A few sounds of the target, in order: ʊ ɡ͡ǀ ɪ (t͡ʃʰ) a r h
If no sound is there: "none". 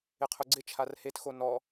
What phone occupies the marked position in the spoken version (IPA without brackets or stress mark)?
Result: t͡ʃʰ